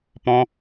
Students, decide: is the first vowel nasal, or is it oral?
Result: nasal